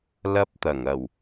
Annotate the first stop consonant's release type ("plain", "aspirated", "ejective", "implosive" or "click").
plain